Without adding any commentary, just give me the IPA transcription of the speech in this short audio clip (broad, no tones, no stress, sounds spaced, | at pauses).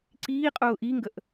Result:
ǀ iː qʼ ʊː ʔ i ŋ ɡ ə ʔ